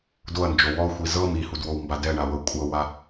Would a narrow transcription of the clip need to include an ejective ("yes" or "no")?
yes